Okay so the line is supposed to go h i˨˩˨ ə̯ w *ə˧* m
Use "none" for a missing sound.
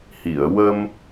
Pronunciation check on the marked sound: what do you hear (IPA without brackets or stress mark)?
ə˧